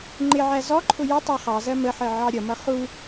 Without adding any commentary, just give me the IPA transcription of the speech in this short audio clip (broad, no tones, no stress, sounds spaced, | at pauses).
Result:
ŋ͡ǃ ɪ ʕ æ z ɔ ǃʰ ʊ j ə tˤ ɑ χ ɑ z ɜ m ə ħ ɜ ʕ ɑ ɾʲ ʌ m ʌ χ u